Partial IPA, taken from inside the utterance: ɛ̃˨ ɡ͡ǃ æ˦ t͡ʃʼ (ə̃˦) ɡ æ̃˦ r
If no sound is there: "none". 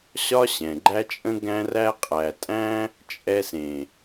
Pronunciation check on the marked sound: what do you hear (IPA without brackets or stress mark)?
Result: ə̃˦